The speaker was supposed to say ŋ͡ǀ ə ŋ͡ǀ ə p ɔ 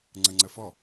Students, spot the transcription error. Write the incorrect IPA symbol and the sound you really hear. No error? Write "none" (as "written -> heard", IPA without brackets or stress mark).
p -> f